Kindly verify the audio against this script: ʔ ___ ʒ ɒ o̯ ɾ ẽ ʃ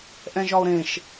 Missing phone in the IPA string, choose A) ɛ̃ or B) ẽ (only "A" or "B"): A